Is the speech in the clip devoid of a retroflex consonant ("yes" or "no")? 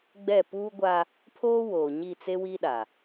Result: yes